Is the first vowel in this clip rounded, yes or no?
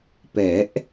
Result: no